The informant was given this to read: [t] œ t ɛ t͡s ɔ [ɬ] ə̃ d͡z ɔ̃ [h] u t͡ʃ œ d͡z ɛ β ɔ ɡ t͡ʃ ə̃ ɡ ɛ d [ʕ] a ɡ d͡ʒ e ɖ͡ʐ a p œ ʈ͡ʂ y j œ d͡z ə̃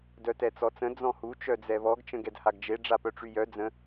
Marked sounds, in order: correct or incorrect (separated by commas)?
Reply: incorrect, incorrect, correct, incorrect